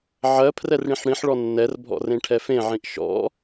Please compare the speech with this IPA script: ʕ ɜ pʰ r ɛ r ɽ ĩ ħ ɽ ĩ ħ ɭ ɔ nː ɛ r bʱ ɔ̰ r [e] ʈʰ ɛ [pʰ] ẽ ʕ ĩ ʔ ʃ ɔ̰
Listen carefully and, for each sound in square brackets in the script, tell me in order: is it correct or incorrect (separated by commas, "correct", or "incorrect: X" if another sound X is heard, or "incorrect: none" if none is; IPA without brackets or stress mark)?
incorrect: ẽ, incorrect: f